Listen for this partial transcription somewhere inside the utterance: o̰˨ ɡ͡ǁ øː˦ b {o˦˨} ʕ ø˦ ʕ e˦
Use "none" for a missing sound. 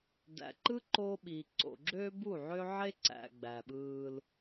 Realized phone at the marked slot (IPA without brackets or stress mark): u˦˨